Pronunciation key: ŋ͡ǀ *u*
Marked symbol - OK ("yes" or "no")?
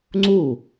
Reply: yes